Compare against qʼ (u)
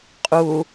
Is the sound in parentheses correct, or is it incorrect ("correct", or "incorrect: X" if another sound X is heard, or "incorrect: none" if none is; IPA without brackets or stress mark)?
correct